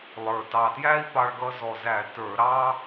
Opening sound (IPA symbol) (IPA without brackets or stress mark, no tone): lˠ